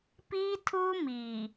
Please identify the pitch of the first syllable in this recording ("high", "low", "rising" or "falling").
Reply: high